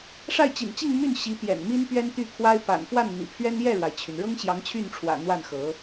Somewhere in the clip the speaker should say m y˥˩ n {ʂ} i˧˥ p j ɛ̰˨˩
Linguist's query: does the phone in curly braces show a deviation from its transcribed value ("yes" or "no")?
yes